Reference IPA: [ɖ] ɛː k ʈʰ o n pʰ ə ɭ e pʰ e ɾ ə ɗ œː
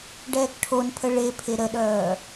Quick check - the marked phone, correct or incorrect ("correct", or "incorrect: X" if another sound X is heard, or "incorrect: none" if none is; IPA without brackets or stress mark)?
correct